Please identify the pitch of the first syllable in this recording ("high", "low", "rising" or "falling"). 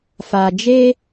low